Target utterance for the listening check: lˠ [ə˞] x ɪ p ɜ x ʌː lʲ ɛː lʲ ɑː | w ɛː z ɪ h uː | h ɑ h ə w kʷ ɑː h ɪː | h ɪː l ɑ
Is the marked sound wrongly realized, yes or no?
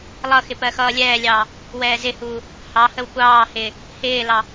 yes